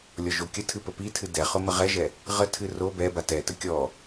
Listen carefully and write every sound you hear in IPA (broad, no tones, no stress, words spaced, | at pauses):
lʲɔʒokʲətʰɨ pəpitʰɨ dɛχʊ məʁɛʒɛ | ʁətʰɨ ro bɛba tɛtə kʲɔ